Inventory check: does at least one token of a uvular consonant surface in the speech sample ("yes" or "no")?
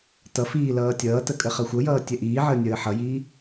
yes